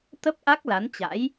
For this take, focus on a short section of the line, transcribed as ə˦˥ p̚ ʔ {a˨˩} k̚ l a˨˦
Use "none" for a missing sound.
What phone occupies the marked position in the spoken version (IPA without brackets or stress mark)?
a˦˥